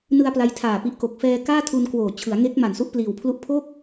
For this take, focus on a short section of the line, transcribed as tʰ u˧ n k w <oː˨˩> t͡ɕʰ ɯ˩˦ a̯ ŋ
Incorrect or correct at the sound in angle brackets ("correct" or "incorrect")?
correct